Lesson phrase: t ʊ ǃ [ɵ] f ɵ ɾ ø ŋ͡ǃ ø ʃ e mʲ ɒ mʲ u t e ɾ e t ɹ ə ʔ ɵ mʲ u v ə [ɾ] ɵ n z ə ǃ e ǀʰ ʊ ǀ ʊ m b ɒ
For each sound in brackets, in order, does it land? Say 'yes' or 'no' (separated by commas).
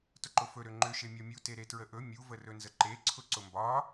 no, no